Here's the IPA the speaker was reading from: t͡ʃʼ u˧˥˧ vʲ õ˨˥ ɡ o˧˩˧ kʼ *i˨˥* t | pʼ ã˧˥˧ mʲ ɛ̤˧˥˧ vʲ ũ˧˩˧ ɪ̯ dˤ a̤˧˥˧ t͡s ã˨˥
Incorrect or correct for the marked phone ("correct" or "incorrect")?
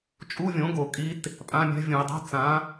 correct